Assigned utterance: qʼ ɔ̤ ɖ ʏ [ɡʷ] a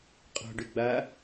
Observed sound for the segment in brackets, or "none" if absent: ɡ͡b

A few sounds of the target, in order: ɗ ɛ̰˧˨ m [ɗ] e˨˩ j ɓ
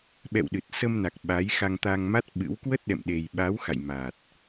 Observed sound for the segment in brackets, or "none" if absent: ɗ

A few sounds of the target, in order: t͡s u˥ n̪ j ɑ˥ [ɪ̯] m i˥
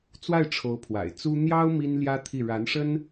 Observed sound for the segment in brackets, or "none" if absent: ʊ̯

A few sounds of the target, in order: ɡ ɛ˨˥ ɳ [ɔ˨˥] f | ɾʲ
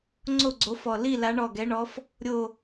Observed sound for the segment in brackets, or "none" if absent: ɔ˨˥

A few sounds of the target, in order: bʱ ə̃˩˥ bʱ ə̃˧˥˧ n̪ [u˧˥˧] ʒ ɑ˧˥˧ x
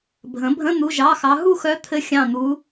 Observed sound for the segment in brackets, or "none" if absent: u˧˥˧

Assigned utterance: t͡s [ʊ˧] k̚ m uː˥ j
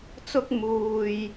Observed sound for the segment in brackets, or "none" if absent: ʊ˥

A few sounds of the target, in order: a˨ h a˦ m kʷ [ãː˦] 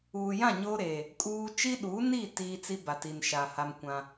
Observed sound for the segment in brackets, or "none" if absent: ã˦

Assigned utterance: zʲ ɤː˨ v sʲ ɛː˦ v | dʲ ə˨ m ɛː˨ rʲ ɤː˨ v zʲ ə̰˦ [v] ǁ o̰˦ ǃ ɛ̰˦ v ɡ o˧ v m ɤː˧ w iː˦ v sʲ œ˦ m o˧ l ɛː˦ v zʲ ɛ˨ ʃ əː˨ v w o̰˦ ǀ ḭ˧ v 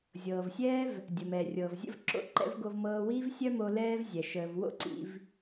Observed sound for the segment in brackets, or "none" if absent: v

